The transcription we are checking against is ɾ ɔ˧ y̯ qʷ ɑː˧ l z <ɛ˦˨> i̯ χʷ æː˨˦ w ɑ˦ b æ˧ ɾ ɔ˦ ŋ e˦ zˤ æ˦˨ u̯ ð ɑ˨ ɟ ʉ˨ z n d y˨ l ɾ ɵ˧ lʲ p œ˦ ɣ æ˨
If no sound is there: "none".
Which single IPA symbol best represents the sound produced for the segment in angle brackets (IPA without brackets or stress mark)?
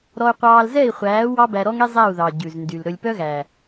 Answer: ɛ˦˨